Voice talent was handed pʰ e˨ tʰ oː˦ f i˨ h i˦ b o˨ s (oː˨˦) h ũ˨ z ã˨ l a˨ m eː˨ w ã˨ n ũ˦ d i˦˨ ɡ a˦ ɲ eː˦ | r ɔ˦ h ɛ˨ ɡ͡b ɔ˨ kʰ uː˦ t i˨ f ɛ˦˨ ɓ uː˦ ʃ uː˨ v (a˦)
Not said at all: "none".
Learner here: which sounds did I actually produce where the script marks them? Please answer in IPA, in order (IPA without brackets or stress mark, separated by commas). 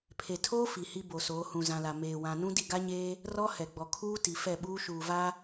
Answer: oː˨˦, a˦